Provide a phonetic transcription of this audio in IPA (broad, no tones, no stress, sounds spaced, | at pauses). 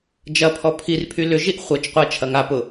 d͡ʒ ɐ pʰ ɔ pʰ i r pʰ y l ʏ ʒ i ʔ χʷ œ t͡ʃ qʷ ɐ t͡ʃʰ ɐ ŋ a p ʊ